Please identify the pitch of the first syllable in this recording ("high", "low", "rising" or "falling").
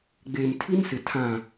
low